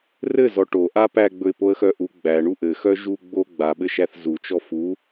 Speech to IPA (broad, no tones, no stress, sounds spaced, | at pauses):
r ɘ z ɔ ʈ o ʔ a p æ ɡ͡b ɵ ɪ̯ p o ə̯ x œ ʔ u ɡ͡b æ ɳ u ʔ ɘ x œ ʒ u ɡ͡b o ɡ͡b a ɓ ɘ ʃ æ θ z u t͡ʃ ɔ f u